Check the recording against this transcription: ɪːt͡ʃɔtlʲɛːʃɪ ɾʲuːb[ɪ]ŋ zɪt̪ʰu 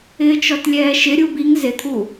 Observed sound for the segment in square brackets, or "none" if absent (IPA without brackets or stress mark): i